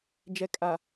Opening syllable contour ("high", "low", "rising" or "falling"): low